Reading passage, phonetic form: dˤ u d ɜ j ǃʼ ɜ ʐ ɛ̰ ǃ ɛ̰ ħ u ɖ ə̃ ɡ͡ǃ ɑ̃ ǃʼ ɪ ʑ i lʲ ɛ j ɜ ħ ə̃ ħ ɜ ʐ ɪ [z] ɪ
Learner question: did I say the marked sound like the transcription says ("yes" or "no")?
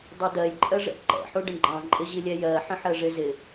yes